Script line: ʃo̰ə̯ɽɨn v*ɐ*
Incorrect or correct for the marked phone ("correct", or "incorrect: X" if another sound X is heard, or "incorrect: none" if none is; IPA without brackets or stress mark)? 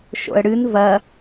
correct